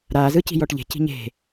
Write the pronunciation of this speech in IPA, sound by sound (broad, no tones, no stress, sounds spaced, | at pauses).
ɾ aː z ɯ c i̤ j ɔ ʈ ʎ e̤ c i̤ ɲ e̤